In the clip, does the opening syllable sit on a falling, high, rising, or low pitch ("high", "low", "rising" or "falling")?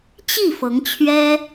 falling